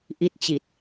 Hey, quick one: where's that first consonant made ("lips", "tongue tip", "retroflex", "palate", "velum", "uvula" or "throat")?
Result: throat